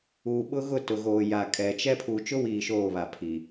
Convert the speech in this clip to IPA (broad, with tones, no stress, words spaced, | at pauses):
uː˨ɓʊ˦ ɣʊ˦˨tʊ˨ɣoː˨ ja˨kʼɛ˨t͡ʃɛ˦ pʰuː˨t͡ʃʊ˦wiː˨ ʃoː˦˨βa˨ pʰi˨